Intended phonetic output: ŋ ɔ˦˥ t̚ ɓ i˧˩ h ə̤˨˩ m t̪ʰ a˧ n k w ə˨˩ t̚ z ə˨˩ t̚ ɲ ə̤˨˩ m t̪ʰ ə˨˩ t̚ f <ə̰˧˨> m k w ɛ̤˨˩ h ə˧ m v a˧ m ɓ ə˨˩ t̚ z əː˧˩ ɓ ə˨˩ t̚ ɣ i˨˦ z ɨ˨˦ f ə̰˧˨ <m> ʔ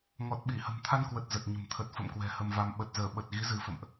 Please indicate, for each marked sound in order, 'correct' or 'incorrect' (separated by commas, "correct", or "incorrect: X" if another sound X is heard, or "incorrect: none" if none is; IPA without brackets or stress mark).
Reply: correct, correct